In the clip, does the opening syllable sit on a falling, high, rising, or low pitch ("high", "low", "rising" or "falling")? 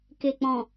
low